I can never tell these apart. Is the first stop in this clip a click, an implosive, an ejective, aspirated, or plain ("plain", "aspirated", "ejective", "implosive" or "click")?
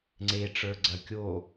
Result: click